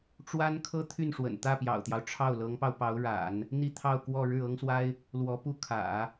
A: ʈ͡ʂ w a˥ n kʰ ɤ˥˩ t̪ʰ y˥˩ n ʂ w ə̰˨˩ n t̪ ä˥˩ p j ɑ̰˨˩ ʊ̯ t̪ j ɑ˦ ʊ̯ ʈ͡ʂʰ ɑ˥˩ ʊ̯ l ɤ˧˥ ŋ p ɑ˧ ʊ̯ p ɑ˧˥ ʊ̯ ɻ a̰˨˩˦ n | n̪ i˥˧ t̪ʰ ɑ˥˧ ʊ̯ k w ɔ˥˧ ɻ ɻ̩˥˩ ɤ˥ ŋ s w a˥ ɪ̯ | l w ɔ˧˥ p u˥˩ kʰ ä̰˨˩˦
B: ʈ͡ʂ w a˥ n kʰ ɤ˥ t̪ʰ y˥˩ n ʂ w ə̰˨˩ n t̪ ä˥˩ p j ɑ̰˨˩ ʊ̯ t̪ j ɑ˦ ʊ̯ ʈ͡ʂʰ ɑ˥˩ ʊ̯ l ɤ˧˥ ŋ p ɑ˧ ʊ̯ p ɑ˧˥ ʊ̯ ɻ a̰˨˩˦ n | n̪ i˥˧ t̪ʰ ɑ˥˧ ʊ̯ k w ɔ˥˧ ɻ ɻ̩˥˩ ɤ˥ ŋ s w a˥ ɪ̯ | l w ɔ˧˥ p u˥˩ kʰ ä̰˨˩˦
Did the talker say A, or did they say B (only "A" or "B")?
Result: B